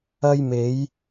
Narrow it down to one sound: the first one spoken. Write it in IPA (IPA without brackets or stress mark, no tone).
ɐ